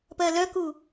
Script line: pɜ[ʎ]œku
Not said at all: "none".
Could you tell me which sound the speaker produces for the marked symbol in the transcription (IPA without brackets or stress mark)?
l